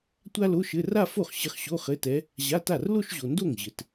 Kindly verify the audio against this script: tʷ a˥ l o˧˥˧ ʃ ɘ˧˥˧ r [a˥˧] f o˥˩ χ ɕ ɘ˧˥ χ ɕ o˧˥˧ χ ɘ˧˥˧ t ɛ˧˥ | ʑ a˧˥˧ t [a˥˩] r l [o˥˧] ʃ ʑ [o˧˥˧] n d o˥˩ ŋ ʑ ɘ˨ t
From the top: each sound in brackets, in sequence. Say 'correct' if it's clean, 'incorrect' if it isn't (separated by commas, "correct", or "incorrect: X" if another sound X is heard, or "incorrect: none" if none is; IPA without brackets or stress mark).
correct, correct, correct, incorrect: o˨